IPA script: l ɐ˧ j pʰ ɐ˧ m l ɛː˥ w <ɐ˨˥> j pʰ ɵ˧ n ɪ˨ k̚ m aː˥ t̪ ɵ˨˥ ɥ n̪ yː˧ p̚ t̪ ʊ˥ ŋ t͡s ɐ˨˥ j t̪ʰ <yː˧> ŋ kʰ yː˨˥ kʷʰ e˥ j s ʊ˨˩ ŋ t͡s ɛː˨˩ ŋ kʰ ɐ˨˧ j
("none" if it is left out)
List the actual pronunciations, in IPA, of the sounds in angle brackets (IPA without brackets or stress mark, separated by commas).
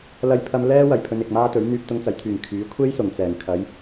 ɐ˨˩, yː˨